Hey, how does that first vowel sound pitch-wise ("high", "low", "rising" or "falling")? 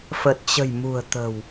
low